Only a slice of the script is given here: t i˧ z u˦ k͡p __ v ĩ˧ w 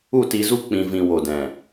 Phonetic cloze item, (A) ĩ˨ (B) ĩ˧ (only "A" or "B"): B